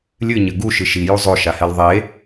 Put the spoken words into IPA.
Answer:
lʲɨɲɘ ɡuʃɨ ʃiju zˤoʃahɛl ðˤe

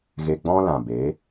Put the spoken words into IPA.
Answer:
ɣe˧ɡ͡bɔ̃˦lã˨be˨˦

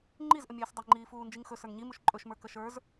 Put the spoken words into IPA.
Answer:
ŋ͡ǃizʔəmʲɛːs dˤiŋ͡ǃiː fuːnd͡ʒiŋxɵ sə˞ŋɲimuʃ ǃʼɵʃmə˞ kəʃə˞z

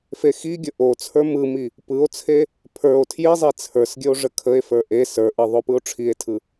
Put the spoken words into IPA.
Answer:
fexiɡʲə ʔot͡sʰə˞ mɯmi | pɯo̯t͡sʰe | pʰə˞o̯ tʰjizˤe t͡sʰə˞sɡʲəo̯ ʐəkʰəe̯fə˞ ʔe sə˞ʔɯ ðˤopɯo̯ʈ͡ʂʰie̯tʰɯ

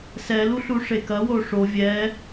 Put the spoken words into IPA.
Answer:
sɛlu ɬuʂekɐwo ʂo vʲɛ

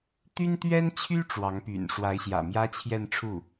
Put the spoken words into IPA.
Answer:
t̪y˥nt̪ɥɛ˥nt͡ɕʰy˥ ʈ͡ʂwɑ˧˥ŋpy̰˨˩n ʂwa˧˥ɪ̯ɕjä̰˨˩mjä˥ t͡ɕʰjɛ˥˧nʈ͡ʂʰu˥˩

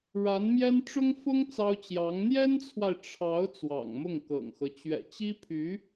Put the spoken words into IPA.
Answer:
ɻa˧˥nmjɛ˥n ʈ͡ʂʊ˥ŋfʊ˥ŋ t͡sɑ˥ʊ̯t͡ɕjɑ˧˥ŋ n̪jɛ˥nt͡sʰwa˨ɪ̯ ʈ͡ʂʰɑ˧˥ʊ̯ t͡swɑ̰˨˩ŋmʊ˥˩ŋkɤ̰˨˩ŋxɤ˦ t͡ɕɥɛ̰˨˩t͡ɕi˥pʰy˧˥

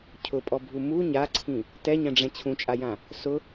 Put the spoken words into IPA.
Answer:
cʰʊpʼɔbʱu mu ɲaǀʰĩ | tɛɲɛ̃ɖ͡ʐɛ̃ t͡ɕʰũt͡ʃʼajã | sʊ

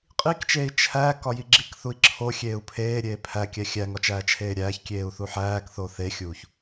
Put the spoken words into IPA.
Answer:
qʼikt͡ʃeːi̯ t͡ʃʰæ kɒjiɡ͡ǁikθui̯ ǁʰo xʲeːu̯pʰeːɾʲeː pʰækʲæ xʲæŋɒ t͡ʃæːt͡ʃʰeːɾʲæːçkʲeːu̯ θuħæːkθo θexʲuːç

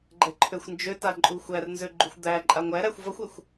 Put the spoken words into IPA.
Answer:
ɡ͡ǃɛǃʰøxʷnd͡ʒøta ǃʼuxʷærnzø ɡ͡ǃuxʷd̪æǃʼa ŋʷæɾæxʷ vʌxʷɛxʷ

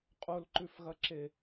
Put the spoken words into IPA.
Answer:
qʼolǃʉfɣɐǁe

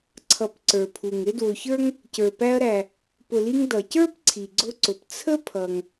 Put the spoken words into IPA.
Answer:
ǀʰʌ˨pǀə˞˩pʰu˩ŋ ɾɪ˦dwʊ˨çə˞˥ŋ | cə˞˨pæ˦ɐ̯ɾæ˨ | pʊ˨li˦ŋ dʌ˩cə˞˥p ǀʰi˩ɡ͡ǀʊ˦ǀʊ˩p t͡sʰə˥pʰʌ˩ŋ

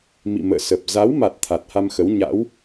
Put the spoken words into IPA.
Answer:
mḭ˧˨mə̰ː˧˨sə˨˩p̚ za˨˦wma˨˩t̚ t̪ʰa˨˩t̚ha˧mxə˨˦w ɲa̰˧˥w

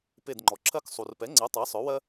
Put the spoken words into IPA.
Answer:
pe˧˩dŋ͡ǃɔ˩ǁʰɜ˦k sˤu˩rpɛ˩˥ŋ͡ǀɛ˩˥ tˤɜ˩˥sˤœ˩˥wɜ˦

